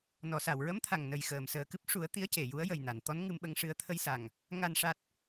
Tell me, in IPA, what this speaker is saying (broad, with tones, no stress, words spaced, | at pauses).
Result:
nɔ˨˩˨sa˨˩˨wɹə˧˥mt̪ʰa˨˩ŋ nə˨˩jxəː˨˩˨msəː˨˩kɨ˦˥p̚ ʂu˨˩˦ə̯ t̪i˧˥ə̯ce˨˩˨ju˧˥ə̯ jə˨˩jna˨˩˨n t̪ɔ˧˥nŋɨ˧mɓə˧ŋʂɨ˧ə̯ t̪ʰə˧jsa˨˩ŋ | ŋa˨˩nʂa˨˩t̚